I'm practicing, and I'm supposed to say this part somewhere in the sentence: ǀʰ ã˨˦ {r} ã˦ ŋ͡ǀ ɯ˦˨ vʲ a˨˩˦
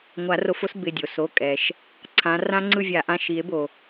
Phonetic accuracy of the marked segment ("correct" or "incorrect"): correct